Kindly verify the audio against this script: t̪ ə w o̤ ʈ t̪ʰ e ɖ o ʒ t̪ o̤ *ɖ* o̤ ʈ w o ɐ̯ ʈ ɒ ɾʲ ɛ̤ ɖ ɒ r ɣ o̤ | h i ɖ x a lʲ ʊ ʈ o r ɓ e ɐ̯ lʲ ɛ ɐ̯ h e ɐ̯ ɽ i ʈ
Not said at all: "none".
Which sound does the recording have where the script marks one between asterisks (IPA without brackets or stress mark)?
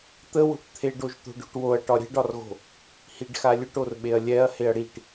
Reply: ɖ